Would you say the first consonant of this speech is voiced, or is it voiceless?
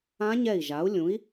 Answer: voiced